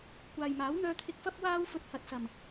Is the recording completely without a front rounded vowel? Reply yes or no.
no